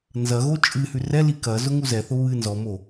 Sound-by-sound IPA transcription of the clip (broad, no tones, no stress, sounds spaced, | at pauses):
n z ɐ ɣ o t͡ʃʼ ɨ h ʉ r ɛ l i k ɐ z ʊ ŋ u z ɛ θ ʊ β ɨ n z ɔ m o